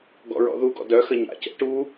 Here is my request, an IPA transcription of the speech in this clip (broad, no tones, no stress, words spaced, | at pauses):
ɡɔ̰ɹɔ̰ðuɡɔ̰ dœ xəɲa̰cɛ̰ ʈu